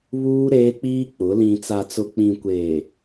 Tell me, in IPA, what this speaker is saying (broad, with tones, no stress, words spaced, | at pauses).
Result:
βuː˦ ɾeː˦k͡piː˦k͡pʊ˨˦ lĩ˨t͡sa˨t͡sʊ˨ k͡pĩ˨kʷeː˨